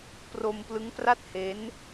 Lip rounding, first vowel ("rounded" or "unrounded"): rounded